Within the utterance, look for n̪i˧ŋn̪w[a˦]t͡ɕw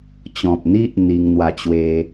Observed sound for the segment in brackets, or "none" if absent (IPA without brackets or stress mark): a˧